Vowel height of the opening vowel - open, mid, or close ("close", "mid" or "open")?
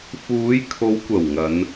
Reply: close